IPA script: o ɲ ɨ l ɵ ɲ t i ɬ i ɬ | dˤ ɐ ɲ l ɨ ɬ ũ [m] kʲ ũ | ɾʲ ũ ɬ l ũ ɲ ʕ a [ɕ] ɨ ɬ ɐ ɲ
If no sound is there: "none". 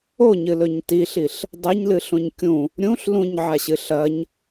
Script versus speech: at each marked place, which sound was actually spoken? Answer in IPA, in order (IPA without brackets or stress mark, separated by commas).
ɲ, ɕ